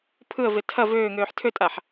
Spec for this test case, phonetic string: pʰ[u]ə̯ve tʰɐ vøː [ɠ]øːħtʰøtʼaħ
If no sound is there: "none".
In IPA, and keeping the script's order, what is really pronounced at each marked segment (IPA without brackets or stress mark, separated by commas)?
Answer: ɯ, ŋ